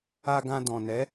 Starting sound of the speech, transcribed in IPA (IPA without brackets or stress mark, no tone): a